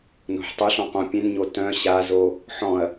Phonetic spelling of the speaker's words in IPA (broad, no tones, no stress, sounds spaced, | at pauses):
n o̤ ħ tˤ ʏ ɬ ɔ̃ q õ pʲ ẽ n ɲ o t œ̃ ɕ a z o | ħ ɔ̃ ɐ̯